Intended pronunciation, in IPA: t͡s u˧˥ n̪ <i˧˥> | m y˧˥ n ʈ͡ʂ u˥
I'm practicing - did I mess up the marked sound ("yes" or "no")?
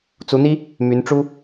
yes